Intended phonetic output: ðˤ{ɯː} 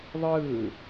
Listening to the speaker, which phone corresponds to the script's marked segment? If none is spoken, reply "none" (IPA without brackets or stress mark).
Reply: ɯː